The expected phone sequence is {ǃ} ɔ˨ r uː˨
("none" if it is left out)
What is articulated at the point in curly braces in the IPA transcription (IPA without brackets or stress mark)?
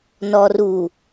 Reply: n